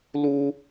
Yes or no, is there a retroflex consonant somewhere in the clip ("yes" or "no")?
no